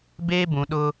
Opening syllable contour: high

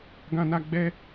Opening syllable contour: high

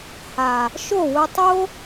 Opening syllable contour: low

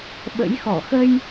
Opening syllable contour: rising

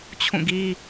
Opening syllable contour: falling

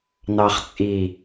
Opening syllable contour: low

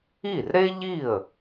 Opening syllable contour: falling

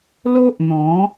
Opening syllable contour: high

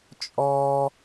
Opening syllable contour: high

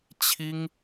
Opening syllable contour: high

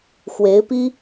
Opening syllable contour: rising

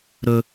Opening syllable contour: high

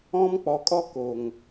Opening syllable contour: high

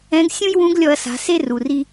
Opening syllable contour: rising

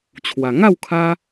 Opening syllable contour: low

